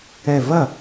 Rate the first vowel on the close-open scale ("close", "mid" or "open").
mid